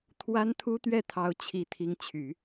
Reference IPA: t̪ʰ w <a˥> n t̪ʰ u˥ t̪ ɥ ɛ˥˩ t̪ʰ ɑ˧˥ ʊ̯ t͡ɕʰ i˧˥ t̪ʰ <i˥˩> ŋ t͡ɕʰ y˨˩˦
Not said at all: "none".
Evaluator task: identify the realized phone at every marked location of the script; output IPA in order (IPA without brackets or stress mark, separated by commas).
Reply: a˥, i˧˥